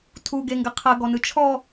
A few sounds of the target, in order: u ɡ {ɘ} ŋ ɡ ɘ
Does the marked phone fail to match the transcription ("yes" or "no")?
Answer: yes